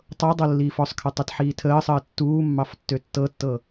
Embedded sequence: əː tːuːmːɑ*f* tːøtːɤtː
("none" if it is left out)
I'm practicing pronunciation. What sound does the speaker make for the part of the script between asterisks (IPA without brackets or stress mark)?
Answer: f